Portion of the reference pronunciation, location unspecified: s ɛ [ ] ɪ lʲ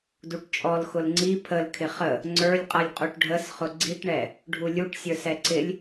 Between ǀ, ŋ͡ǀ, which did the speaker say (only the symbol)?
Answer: ǀ